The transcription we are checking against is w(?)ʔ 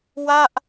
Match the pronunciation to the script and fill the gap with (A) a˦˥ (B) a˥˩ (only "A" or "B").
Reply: B